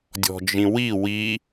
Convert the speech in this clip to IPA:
dʲ ɔ̤ d͡ʒ ĩ w i w i

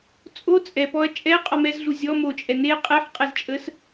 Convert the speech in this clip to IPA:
t͡sʼ o t͡sʼ ɛ p ɔ ɐ̯ t͡ʃʼ ɛ qʼ ɔ m ɛ z ɮ u zʲ ɔ m o t͡ʃʼ ɛ n e qʼ ɛ ħ qʼ ɛ z t͡ʃʼ ə s

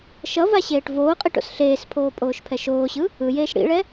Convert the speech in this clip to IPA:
ʃ ʌ v a ɕ eː ʈ v oː qʼ i ʈ o̰ s ɬ eː s pʰ oː pʼ oː ʃ pʰ ɛ ʃ oː ɕ ɯ | ɯ j eː ʃ ɽ ḭ ɭ ɛ

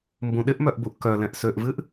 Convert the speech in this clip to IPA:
m b ũ ɗ ɪ ʔ m œ ʔ b u ʔ k œ l ɛ̃ ʔ s ø ʔ v ɨ ʔ

